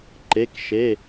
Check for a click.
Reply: present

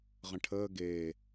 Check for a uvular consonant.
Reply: present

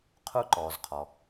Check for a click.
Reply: present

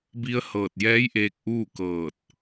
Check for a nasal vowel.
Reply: absent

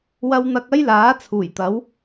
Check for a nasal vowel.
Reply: absent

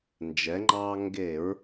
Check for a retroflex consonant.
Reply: absent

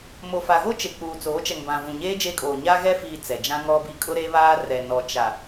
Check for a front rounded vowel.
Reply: absent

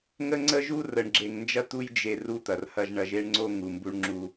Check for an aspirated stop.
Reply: absent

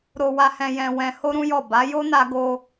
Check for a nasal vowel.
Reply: present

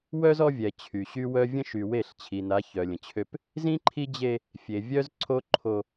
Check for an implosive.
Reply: absent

